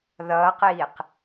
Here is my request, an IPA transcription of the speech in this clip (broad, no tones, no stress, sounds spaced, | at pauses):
ð ʌː q iː q